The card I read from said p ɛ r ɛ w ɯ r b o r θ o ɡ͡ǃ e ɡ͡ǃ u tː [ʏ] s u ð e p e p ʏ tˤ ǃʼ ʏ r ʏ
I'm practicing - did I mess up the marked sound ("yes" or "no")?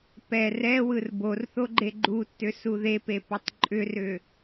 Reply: no